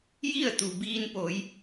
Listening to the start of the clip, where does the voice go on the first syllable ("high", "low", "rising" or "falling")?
falling